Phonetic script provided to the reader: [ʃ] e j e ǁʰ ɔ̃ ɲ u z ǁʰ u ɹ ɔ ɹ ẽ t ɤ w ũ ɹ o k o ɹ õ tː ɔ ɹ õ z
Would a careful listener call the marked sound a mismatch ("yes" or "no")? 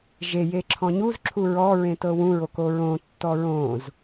yes